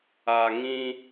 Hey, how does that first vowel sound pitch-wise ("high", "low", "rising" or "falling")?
low